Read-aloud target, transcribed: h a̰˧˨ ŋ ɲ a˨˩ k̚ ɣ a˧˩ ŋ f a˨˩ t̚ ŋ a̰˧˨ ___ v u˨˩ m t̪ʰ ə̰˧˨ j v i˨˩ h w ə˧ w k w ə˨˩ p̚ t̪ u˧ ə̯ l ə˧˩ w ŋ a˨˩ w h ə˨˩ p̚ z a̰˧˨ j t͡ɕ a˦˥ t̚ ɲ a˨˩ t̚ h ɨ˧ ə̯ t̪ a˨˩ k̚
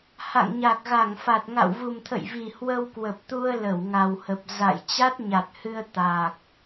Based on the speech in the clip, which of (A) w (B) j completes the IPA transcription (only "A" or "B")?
A